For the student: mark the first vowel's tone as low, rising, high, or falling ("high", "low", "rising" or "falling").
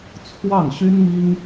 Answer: falling